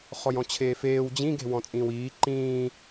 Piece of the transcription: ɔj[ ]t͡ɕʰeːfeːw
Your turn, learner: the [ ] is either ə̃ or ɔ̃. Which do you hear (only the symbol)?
ɔ̃